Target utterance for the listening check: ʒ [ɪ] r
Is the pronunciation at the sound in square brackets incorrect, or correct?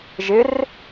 correct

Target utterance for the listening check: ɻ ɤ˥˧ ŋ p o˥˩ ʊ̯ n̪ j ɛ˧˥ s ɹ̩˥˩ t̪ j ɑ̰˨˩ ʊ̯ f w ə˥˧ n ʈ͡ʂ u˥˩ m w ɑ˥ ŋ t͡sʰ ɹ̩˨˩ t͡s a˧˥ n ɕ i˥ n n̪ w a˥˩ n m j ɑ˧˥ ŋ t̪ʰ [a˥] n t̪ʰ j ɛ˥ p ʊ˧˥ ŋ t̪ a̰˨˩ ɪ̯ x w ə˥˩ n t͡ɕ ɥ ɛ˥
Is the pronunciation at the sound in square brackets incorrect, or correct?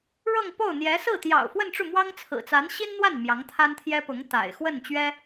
correct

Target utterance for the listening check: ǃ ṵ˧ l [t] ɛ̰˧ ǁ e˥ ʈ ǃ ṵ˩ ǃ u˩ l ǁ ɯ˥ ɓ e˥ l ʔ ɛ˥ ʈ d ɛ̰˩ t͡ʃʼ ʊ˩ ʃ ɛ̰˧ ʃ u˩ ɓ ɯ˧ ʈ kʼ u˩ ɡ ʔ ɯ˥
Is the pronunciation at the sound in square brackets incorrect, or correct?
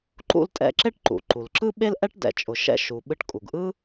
incorrect: tʼ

